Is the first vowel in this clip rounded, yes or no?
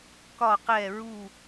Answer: yes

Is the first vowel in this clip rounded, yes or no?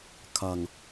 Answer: no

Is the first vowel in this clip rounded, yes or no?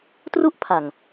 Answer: yes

